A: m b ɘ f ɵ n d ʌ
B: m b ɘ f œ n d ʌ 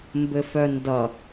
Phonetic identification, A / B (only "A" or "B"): B